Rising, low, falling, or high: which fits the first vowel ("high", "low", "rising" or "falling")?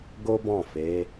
high